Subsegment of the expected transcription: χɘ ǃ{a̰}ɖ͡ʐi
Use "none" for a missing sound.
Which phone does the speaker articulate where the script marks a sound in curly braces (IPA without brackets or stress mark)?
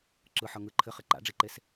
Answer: a̰